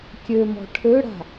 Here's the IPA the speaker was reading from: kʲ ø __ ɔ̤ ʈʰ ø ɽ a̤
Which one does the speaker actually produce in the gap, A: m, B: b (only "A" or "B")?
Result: A